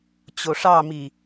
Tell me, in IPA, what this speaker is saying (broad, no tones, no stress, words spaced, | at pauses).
t͡ɕoʂɑmi